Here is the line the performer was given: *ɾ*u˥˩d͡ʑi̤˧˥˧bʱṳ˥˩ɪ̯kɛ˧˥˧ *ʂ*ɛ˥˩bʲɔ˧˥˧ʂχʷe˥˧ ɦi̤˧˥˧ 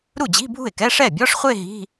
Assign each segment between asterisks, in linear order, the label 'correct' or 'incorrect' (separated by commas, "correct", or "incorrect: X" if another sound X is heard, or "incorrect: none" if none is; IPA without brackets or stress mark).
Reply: correct, correct